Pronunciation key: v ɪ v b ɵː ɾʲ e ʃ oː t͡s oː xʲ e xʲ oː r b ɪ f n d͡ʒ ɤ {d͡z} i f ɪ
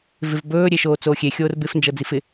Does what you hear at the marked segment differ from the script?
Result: no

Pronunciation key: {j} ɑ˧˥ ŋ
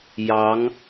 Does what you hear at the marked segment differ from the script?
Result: no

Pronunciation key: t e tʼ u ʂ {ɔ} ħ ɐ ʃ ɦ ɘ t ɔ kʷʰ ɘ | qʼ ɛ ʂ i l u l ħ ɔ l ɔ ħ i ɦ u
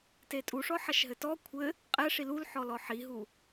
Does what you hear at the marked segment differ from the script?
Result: no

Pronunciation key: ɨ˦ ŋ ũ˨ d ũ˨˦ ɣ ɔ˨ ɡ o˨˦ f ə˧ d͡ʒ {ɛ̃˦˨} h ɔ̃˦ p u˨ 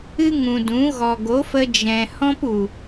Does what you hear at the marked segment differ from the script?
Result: yes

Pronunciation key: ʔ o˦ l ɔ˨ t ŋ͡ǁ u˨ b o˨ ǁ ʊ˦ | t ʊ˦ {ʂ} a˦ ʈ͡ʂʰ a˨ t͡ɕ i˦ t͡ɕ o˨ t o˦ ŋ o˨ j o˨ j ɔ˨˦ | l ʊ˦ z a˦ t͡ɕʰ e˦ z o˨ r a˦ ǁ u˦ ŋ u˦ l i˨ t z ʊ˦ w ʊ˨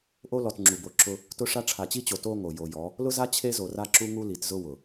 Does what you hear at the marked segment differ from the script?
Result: no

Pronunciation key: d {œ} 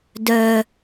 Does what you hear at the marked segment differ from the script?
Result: no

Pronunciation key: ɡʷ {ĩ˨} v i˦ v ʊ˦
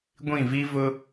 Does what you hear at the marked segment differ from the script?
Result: yes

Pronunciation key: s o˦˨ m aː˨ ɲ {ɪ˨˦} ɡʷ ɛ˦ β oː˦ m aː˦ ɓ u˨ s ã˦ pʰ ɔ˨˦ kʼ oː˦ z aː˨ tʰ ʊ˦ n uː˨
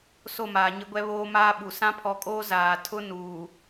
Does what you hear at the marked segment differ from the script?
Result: yes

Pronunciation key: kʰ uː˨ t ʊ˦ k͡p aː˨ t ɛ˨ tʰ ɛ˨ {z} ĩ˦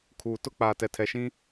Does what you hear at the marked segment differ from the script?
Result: yes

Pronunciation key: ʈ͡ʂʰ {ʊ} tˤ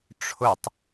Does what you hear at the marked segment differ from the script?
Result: no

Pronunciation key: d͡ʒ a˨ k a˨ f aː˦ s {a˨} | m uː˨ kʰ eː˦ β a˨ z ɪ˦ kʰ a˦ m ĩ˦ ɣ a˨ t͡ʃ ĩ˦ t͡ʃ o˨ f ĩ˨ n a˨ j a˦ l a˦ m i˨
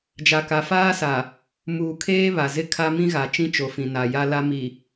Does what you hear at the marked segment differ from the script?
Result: no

